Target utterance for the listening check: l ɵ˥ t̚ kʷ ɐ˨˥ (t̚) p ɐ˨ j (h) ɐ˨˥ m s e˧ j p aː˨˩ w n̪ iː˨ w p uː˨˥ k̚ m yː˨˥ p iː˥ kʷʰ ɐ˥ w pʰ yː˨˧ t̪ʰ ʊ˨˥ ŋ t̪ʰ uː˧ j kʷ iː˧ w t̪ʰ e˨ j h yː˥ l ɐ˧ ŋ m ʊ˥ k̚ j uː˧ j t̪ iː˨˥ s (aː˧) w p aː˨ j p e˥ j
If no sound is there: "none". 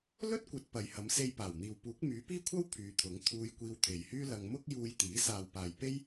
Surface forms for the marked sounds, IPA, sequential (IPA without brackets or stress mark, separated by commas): t̚, h, aː˨